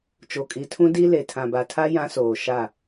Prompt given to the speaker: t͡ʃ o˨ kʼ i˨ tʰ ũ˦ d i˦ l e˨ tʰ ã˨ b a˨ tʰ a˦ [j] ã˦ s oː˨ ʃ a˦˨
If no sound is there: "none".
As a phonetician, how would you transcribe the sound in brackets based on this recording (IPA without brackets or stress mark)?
j